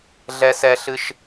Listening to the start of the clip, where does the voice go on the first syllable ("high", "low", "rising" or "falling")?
high